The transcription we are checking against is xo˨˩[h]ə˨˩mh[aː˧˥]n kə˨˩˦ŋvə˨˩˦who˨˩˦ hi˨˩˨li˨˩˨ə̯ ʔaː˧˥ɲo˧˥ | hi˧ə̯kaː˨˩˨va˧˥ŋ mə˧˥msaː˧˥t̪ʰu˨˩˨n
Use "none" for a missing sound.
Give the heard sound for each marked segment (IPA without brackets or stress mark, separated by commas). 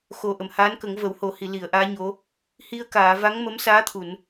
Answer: ʔ, aː˧˥